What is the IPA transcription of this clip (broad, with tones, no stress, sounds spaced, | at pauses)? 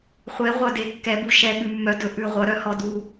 χʷ e˩˧ ʁʷ œ˨˩ d e˩˧ kː ɛ˩˧ b u˨˩ ʃ ɛ˨˩ ɠ ʉ˨˩ mː œ˩˧ d ɵ˩˧ ʔ ʉ˨˩ ʁʷ œ˩˧ ɾ œ˩˧ h ɔ˨˩ d u˨˩